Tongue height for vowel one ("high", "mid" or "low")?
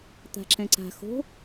low